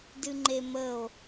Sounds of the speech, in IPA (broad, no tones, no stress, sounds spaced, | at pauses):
d ɨ ŋ͡ǃ e m ə o̯